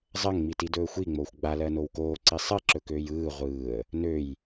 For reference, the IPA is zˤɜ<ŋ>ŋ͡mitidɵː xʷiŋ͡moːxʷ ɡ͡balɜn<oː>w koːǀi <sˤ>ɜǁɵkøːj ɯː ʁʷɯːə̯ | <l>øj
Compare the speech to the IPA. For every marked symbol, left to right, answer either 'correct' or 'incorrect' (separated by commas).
correct, incorrect, correct, incorrect